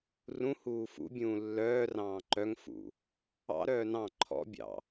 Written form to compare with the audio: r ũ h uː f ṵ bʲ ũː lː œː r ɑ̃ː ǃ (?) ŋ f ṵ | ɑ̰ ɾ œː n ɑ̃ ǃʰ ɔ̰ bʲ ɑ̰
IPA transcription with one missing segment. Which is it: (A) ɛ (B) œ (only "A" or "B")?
B